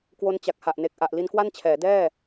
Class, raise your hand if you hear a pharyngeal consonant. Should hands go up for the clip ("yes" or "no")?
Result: no